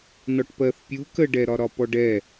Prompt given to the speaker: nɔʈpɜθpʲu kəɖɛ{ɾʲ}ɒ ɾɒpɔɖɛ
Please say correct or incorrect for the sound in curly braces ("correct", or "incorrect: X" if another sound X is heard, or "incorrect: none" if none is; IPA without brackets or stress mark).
incorrect: ɾ